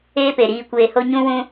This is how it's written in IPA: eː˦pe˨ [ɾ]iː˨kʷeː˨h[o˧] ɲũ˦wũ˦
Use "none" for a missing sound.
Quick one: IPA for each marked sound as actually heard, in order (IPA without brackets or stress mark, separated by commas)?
ɾ, o˧